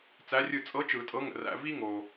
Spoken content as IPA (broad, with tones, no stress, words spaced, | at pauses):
t͡sæ˧˥rʲɯ˦˨ t͡sʼɤ˧˥t͡ʃɯ˨˩˦ tʼɤ˧˥ŋə̰˨ræ̰˧˥˧ vi˥ ŋo˨